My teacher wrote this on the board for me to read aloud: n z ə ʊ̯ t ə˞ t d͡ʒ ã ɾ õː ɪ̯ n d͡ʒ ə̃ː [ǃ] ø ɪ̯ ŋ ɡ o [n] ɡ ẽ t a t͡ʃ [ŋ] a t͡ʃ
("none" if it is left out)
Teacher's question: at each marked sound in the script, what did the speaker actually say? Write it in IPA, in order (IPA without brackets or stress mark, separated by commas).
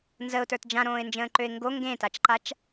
ǃ, ŋ, ǃ